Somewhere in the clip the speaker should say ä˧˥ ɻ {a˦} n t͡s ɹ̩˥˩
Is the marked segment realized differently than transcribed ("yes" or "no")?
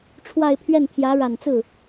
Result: yes